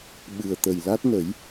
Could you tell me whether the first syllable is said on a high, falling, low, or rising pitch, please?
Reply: low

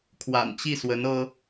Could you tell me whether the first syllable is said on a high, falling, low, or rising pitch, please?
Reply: low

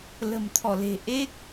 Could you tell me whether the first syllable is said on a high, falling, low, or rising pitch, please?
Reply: low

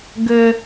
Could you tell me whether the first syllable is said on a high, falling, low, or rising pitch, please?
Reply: high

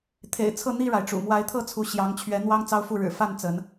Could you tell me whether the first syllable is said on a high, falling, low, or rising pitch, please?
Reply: low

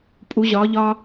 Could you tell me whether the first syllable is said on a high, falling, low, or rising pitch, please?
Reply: rising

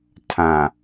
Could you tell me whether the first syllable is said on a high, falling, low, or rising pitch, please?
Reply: low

